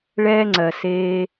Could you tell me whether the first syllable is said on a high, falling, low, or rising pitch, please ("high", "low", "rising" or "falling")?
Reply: high